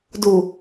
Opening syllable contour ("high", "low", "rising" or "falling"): low